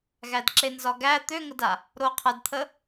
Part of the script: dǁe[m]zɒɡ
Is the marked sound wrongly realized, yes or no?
yes